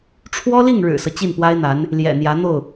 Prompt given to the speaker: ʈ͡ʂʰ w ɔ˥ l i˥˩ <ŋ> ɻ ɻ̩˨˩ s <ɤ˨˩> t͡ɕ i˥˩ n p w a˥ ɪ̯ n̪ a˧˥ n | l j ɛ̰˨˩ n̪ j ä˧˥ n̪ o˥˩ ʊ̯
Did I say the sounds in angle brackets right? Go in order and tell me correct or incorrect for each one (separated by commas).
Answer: correct, incorrect